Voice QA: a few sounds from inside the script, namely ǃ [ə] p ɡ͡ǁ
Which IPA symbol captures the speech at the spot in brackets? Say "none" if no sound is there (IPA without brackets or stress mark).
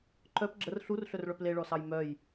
œ